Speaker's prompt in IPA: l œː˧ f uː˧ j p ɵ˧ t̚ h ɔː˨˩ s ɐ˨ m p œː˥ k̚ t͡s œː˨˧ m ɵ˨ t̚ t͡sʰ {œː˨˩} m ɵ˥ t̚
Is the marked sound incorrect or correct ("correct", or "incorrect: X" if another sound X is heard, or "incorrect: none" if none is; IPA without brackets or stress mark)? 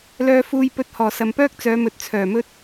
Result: correct